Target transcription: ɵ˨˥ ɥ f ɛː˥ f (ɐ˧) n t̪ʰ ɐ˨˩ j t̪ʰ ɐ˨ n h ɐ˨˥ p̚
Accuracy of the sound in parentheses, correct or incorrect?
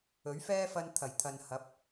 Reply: correct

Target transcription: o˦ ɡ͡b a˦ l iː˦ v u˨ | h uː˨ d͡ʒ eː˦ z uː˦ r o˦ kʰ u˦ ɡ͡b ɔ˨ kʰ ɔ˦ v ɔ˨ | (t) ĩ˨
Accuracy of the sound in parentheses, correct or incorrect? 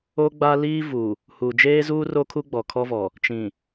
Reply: incorrect: t͡ʃ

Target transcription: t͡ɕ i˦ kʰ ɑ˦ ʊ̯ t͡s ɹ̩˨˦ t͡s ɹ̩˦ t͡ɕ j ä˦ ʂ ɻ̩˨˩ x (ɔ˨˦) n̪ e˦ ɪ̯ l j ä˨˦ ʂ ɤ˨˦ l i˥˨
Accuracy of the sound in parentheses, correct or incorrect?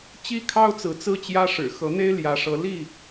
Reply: incorrect: ɤ˨˦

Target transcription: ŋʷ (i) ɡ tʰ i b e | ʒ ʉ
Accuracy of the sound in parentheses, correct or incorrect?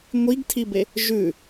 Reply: correct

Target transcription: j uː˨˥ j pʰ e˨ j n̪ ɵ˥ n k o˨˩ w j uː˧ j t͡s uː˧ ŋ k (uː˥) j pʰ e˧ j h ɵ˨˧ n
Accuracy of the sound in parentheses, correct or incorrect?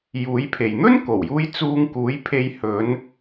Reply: incorrect: uː˨˥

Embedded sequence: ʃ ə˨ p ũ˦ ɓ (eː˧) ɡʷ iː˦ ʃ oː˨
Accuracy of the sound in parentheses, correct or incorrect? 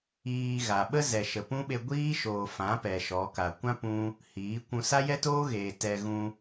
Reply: incorrect: e˧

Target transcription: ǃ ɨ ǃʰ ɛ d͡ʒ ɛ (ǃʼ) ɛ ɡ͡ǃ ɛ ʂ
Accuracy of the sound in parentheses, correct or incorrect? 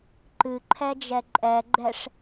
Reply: correct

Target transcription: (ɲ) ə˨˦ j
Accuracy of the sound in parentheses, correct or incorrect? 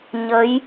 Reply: correct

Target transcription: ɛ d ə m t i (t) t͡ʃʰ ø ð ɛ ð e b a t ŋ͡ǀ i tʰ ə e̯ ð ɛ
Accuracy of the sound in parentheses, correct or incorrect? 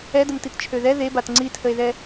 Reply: correct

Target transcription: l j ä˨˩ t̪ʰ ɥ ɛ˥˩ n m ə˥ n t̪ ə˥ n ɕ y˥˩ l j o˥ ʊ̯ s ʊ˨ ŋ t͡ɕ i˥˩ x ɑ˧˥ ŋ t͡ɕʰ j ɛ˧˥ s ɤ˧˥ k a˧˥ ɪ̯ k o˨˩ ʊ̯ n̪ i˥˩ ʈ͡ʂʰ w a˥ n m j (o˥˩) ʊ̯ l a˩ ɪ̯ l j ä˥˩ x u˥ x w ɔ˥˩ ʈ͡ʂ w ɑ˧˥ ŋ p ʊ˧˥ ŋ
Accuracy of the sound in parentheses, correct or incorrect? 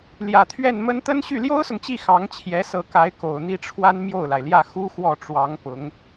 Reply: correct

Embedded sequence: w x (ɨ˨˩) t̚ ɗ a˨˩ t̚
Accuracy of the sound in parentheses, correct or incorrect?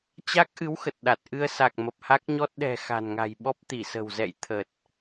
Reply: incorrect: ə˨˩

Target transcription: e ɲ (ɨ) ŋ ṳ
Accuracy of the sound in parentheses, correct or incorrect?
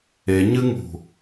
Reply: correct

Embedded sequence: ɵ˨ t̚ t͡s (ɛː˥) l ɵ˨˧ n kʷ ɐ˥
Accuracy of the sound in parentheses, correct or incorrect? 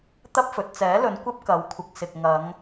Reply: incorrect: ɛː˨˥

